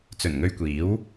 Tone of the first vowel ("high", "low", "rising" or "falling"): low